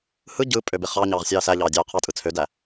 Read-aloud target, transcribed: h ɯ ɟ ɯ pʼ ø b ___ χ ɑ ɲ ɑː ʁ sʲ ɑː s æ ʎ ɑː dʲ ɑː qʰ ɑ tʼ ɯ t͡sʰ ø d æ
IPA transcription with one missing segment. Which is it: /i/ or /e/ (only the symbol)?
e